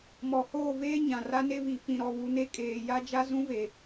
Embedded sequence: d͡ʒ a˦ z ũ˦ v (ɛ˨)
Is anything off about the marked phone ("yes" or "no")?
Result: yes